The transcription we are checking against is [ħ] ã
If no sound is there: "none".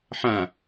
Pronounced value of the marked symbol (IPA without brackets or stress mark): ħ